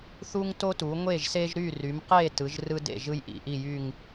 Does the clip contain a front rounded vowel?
yes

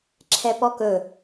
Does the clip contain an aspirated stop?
yes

